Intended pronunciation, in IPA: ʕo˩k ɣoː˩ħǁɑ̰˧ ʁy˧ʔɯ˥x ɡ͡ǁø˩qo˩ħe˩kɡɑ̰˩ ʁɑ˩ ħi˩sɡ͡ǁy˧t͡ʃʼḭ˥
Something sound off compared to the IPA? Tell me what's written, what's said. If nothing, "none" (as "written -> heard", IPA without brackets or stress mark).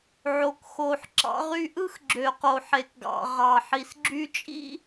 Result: ɣ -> x